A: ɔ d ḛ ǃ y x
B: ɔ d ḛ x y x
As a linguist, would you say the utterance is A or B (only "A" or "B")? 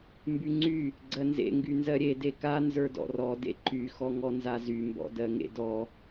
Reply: A